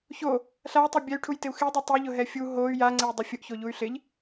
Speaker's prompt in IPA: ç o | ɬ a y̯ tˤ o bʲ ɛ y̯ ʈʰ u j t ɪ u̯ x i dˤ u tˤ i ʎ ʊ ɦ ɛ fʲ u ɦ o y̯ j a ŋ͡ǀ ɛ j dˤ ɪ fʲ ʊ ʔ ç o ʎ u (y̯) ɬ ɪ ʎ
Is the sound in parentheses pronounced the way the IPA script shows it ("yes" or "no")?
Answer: yes